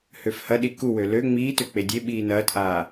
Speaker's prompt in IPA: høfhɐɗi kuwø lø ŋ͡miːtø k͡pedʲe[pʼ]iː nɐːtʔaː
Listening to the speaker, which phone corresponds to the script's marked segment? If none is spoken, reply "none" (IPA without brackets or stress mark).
ɓ